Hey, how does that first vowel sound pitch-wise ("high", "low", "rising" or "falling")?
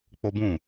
high